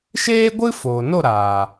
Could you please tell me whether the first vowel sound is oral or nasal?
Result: oral